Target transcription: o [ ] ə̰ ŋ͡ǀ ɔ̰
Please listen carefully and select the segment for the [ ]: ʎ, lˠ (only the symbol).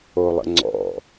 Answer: lˠ